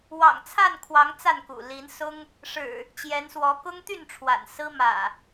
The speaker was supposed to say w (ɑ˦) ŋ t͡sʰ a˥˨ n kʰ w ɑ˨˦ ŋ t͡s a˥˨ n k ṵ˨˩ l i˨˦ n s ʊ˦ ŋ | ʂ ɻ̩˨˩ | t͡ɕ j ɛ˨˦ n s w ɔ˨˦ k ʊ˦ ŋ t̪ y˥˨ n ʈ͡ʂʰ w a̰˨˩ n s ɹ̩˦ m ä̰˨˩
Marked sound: incorrect: ɑ̰˨˩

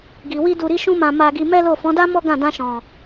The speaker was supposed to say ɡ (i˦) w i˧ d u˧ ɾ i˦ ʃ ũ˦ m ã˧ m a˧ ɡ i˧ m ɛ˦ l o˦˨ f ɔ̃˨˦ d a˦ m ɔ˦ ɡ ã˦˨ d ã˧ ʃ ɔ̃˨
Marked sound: incorrect: i˨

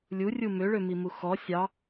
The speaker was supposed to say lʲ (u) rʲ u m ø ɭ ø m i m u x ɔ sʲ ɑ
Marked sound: correct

